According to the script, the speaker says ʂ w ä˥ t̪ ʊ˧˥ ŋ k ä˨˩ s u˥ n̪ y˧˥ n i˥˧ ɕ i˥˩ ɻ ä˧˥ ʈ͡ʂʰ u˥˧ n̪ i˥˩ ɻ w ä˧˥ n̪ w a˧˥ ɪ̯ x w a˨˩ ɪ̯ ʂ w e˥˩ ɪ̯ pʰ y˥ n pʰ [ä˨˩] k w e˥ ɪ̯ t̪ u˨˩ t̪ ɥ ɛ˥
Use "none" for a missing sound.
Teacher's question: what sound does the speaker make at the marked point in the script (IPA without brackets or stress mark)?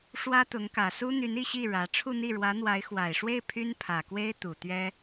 ä˨˩